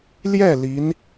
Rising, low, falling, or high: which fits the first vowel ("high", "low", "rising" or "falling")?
falling